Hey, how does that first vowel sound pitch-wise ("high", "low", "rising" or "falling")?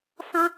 high